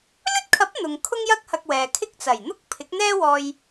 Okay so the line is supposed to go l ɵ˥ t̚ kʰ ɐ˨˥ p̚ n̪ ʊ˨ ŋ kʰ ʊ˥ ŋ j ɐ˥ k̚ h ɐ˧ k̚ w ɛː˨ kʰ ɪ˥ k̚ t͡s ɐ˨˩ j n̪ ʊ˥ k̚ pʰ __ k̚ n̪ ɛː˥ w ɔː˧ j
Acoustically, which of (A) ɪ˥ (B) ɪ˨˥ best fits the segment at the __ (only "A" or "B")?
B